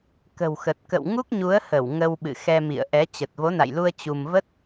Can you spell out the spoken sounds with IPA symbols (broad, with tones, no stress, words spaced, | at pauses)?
kə̤˨˩wxə˨˩t̚ kə̰˧˨wŋu˦˥k̚ɲu˨˦ə̯hə˧˩w ŋə˧wɓɨ̰˧˨ xɛ˧ mḭ˧˨ə̯ʔɛ˨˦ t͡ɕə˨˩t̚vo˨˦na̰˧˨jlu˧ə̯ t͡ɕu˧m və˦˥t̚